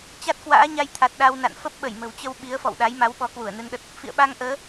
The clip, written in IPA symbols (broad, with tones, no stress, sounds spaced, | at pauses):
t͡ɕ a˦˥ t̚ k w a̰ː˧˥ ɲ a˧ j t̪ʰ a˨˩ t̚ ɗ a˧ w n a̰˧˨ n f ə˦˥ p̚ ɓ ə˧˩ j m ə̤˨˩ w t͡ɕ ə˧ w ɓ i˨˦ ə̯ f ɔ̰˧˨ w ɗ a˨˦ j m a˨˦ w ɓ ɔ˨˦ k w u˧˩ ə̯ n ɨ˧ n ɗ ə˦˥ t̚ | f ḭ˧˨ ə̯ ɓ a˧ ŋ ʔ əː˨˦